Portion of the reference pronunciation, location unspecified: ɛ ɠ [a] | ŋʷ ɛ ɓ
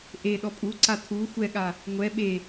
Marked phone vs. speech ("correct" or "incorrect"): correct